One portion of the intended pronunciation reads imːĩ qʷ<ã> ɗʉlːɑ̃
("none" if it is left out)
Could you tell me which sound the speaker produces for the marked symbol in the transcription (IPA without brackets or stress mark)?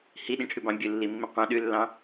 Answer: ɑ̃